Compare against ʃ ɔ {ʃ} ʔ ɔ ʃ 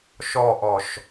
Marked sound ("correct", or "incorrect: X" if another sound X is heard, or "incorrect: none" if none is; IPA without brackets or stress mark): incorrect: none